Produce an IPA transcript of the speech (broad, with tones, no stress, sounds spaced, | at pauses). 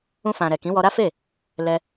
ũ˧ f ã˨ ɾ ɛ˨ k ĩ˨˦ w ɔ˧ ɾ a˦ f e˦˨ | l ɛ˧